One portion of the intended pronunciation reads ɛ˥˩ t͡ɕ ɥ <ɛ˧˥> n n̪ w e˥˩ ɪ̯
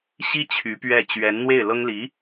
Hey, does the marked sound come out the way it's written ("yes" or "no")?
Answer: yes